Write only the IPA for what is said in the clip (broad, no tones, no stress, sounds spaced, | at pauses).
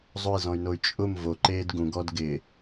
zˤ ʊ i̯ z ɔ̃ y̯ n o y̯ t͡ʃʼ ʊ m v o ǃ eː d ɡ ũ ɡ ɔ d ɡ ɪ